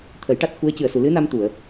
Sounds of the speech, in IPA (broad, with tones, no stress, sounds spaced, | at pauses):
t̪ʰ ə˨˩˦ j ʈ a˦˥ t̚ x u˧˥ ə̯ c ɨ˨˩ ə̯ s u˨˩˨ l ɨ˧˥ n a˧ m t̪ u˨˩˨ ə̯